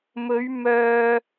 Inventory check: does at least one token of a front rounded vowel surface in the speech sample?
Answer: yes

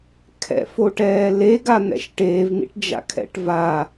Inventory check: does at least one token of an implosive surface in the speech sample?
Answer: no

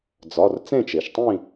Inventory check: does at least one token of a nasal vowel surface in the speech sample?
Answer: yes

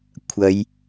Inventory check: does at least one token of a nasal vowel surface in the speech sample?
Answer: no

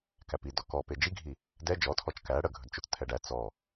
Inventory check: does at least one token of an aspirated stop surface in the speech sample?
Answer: yes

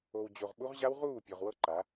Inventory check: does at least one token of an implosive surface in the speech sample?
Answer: yes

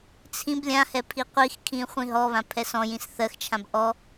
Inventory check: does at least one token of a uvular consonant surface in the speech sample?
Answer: yes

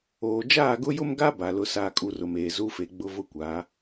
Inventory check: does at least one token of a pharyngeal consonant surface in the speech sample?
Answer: no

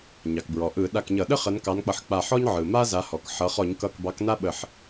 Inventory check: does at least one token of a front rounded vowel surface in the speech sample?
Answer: no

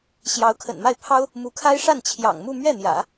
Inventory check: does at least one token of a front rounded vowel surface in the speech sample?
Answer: no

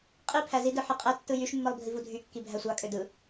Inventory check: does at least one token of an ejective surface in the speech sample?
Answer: yes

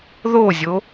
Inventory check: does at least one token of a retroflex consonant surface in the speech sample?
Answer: no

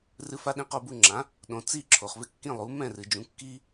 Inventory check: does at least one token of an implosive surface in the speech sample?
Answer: yes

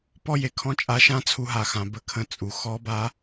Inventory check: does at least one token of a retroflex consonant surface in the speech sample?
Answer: no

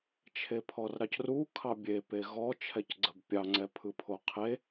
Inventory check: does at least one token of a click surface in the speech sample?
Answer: yes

